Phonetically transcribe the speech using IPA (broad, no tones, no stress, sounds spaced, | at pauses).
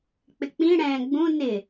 k͡p ɪ k͡p ĩ ɽ ɛ̃ː ɡ͡b ũ n ɪ